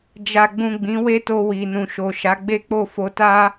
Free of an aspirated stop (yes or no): yes